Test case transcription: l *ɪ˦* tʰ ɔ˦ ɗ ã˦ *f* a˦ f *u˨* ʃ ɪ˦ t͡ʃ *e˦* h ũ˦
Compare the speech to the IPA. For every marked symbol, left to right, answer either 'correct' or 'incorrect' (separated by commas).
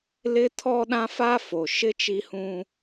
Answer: correct, correct, incorrect, incorrect